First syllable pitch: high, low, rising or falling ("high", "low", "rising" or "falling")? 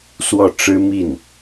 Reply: falling